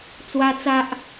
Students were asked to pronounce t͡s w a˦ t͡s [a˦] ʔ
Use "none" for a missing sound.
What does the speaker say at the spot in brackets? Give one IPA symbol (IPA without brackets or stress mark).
a˦